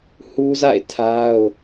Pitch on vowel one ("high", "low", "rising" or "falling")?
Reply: high